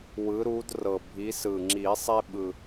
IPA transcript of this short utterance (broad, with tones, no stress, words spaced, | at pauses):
wɯ˨˦ɾu˨˦drɤ˨˩ bʱi˨˦sɯ˨˩ ŋ͡ǁi˨˩˦sˤe˦ɓɯ˨˩